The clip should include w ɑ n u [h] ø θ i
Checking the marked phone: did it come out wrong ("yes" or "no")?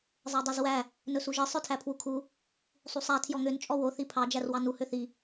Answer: no